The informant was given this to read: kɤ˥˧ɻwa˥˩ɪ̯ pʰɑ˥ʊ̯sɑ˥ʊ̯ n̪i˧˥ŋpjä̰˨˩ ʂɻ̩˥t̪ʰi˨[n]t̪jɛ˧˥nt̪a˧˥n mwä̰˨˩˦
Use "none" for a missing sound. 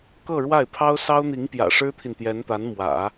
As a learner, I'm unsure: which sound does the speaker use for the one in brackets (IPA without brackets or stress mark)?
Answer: n